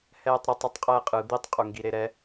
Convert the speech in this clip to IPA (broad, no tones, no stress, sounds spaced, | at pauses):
h ɛː tˤ ɾ ɯ tˤ ɯ tˤ qʼ ɛː qʼ ɯ d̪ i tˤ qʼ u ŋ ɡ i ɾ e ɾ ɛ